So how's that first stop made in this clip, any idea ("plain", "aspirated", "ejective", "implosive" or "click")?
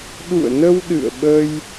implosive